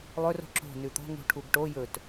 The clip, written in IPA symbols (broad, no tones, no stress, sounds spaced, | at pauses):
lˠ ɵ r o̤ ǁ o̤ n ʉ t̪ o̤ ŋ ṳ ʈʰ u ɡ ʈ o j ɵ t